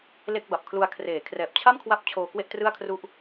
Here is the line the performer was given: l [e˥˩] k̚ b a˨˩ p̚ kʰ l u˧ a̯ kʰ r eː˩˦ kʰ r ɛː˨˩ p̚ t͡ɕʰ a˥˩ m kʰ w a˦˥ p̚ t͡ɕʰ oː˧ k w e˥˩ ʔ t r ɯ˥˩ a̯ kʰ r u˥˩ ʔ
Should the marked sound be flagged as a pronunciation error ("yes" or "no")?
no